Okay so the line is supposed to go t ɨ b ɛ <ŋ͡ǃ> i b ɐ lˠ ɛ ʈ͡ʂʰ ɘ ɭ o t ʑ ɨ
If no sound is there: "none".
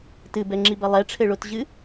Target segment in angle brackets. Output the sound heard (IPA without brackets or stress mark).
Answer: ŋ͡ǁ